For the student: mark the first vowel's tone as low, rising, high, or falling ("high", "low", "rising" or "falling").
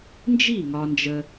falling